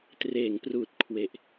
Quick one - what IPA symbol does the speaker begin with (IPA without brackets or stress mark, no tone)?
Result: t